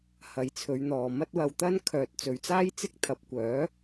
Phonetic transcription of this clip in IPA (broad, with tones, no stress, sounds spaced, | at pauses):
h ɐ˨˧ j t͡sʰ ɵ˨˧ ɥ n̪ ɔː˨ m ɐ˥ t̚ w ɐ˧ w t̪ ɐ˥ n kʰ œː˨ t̚ t͡s ɵ˨ ɥ t͡s aː˥ j t͡s ɪ˥ k̚ t̪ʰ ɐ˨˥ p̚ kʷ œː˨˥